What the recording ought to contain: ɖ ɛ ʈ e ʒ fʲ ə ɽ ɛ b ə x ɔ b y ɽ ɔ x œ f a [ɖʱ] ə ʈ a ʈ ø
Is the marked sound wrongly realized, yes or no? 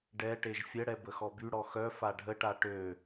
no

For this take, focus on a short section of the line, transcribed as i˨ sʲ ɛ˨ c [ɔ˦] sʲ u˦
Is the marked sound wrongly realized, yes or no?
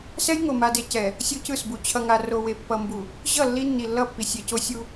yes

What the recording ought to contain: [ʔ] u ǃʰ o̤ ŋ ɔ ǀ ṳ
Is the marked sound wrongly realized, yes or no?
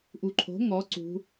no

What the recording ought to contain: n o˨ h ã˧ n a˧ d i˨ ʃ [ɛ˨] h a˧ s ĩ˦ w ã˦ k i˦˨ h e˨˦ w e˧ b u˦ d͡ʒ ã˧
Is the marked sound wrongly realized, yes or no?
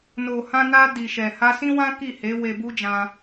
no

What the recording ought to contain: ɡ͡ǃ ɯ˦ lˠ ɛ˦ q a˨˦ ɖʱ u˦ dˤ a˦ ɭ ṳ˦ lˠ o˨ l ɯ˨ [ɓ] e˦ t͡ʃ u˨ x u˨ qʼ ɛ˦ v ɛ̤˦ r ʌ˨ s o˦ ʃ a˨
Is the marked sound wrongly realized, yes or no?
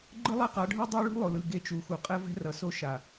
yes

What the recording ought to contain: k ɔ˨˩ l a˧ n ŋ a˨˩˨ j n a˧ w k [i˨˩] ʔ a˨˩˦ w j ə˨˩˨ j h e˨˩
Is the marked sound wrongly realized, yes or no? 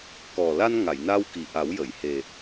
no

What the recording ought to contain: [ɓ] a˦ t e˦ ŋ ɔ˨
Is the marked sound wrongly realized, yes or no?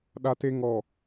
yes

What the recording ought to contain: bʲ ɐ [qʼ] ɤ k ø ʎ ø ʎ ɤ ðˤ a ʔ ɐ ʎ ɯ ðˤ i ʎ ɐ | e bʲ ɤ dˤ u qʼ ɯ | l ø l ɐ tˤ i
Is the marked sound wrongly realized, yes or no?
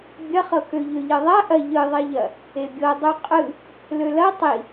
yes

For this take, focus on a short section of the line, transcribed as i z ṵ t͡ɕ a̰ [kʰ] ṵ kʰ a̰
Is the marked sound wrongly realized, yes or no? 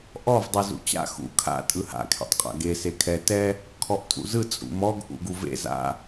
yes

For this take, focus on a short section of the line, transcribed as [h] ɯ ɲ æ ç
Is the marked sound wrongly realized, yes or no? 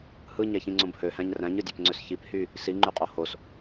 no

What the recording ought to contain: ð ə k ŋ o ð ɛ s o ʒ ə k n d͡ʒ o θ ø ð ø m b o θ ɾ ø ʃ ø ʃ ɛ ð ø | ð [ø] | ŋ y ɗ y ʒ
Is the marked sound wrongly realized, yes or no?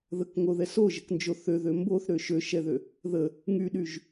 yes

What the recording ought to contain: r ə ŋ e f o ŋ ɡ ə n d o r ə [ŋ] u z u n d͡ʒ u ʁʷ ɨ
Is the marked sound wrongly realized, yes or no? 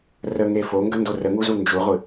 no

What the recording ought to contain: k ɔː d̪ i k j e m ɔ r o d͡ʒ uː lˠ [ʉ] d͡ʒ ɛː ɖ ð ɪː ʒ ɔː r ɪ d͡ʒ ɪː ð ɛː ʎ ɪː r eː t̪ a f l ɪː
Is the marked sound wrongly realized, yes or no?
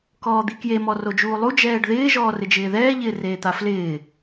yes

